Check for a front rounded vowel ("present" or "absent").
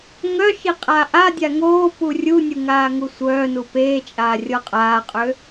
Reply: present